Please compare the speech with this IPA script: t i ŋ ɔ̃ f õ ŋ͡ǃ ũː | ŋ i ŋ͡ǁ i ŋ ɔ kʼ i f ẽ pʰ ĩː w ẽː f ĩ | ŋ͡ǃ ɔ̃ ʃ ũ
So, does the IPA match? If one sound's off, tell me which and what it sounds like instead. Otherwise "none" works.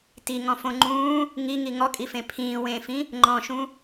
ŋ͡ǁ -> ŋ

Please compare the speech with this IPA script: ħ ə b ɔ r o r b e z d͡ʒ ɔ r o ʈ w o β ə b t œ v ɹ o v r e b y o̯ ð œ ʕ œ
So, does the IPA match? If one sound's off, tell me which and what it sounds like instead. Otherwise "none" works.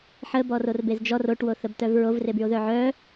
β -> θ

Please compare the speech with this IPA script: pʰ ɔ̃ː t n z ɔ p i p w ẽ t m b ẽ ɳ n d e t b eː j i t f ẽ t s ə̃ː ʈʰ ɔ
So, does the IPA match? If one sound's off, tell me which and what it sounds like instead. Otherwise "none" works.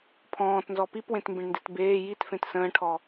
none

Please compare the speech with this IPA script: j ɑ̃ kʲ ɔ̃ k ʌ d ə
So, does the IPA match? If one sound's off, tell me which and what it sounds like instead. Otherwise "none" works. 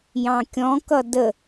none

